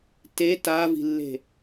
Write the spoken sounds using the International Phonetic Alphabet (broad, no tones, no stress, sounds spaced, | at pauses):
t e t aː v i̤ lː e̤